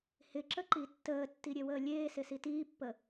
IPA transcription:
hɪǁəǃi tːəːtːiɾʲewəː lʲeːsɪsi tiːpːə

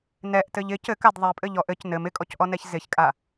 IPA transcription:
nɛʔtɘʎ ɪ cɘkad ðˤɛpʼɘʎɔʔ ɘc nɘm ɪkʼɔcʔɔnɛç zɪçkʼa

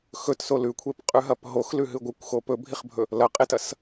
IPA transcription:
xɵtso lʉkʷʰepqʼʉɦɐp ɦoxlʉɦɨ ɡʷɨkʷxo pɵbʱiχbʱɵ | lɐqʼetɐs

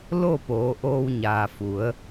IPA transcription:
lo˥˨ poː˩˧ʔoː˧wɲaː˩fu˩˧ə̯

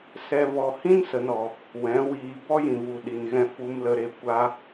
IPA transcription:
sɛ˨vɔ˨ hĩ˦nsə˨nɔ˨ | wɛ̃˨˦wiː˧ bɔ˦jĩ˨vu˨ ɗi˨nɣɛ̃˧ fu˨mlə˨ɾe˨ kʷa˦

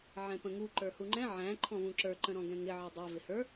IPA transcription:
ʕɛ̃pə̃ŋu ǃə˞huŋ͡ǃɛ̃ ʕæ̃ ǃʰɔ̃vũǁə˞ ǃə̃ɾɔ̃ɡɛ̃ŋɪ ʕidˤɛ vɪhə˞

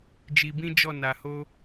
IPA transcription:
d͡ʒi˧bĩ˦d͡ʒɔ˦˨ na˧ho˦

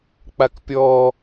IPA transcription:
k͡pakpʲɔ

